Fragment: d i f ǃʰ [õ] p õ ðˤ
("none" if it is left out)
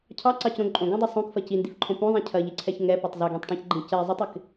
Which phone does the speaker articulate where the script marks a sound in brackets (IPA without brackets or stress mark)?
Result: õ